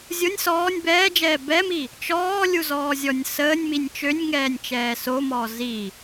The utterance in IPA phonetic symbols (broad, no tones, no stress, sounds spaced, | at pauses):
zʲ o nʲ s ɔː nʲ b ɛː d͡ʒ ɛː b ɛ m i | t͡ʃ ɔː lʲ u z ɔː zʲ ɔ nʲ s əː nʲ m i nʲ t͡ʃ ø nʲ ŋ ɛː nʲ t͡ʃ ɛː s o m ɔː z i